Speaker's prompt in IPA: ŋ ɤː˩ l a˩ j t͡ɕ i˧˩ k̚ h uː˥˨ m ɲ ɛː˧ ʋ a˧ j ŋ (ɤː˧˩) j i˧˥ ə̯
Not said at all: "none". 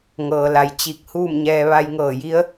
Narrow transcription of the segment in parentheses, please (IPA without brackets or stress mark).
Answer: ɤː˧˩